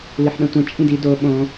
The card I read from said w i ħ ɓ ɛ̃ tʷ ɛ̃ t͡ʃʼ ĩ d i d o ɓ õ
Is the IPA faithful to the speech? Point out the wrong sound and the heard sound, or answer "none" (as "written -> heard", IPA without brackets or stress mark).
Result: none